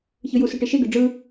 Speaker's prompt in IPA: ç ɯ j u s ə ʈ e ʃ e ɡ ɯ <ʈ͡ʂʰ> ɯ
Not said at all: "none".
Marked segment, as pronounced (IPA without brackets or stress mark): ɖ͡ʐ